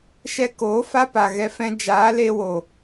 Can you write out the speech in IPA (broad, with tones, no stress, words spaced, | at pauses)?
ʃɛ˧koː˨˦ fa˦pa˨ɣɛ˧ fɛ̃˧ d͡ʒaː˨˦le˧wo˨